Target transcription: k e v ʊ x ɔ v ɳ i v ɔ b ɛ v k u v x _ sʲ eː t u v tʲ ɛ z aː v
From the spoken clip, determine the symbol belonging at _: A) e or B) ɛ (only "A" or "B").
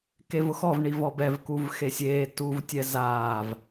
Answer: A